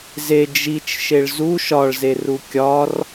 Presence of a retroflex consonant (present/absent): present